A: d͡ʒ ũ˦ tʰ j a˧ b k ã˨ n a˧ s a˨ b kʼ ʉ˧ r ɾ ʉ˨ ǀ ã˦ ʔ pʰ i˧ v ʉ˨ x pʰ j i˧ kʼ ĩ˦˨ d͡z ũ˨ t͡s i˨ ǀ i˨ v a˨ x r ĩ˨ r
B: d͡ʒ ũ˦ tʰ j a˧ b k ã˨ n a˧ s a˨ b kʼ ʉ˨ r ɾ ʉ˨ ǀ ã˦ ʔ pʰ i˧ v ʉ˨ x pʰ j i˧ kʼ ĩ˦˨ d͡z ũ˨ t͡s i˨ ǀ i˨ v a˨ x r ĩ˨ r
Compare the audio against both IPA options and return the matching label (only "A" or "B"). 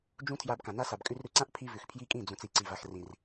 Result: A